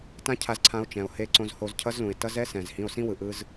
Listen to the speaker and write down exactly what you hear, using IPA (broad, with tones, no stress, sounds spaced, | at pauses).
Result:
t ã˦ cʰ a˧ z ǀʰ ã˧ o̯ t͡ʃ ɛ̃˨ o̯ h e˧ ǀ õ˧ z h o˧ z cʰ ʌ˦ z l ũ˨ e̯ t ʌ˦ z ɛ˦ s ɛ̃˨ z h ĩ˧ o̯ s ĩ˦ w ɯ˨ ʔ ɯ˧ z